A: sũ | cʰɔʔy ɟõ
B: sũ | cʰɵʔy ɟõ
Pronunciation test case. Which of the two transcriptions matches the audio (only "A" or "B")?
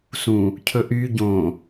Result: B